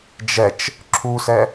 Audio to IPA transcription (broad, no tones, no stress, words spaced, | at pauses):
d͡ʒɛt͡ʃ | ǁʰusɛ